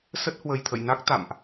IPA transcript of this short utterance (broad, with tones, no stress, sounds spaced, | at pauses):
s ə˦˥ t̚ h w ə˨˩ j t̪ʰ ə̰˧˨ j n a˦˥ k̚ t̪ a̰˧˨ m ʔ